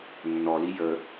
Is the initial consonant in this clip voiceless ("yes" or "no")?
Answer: no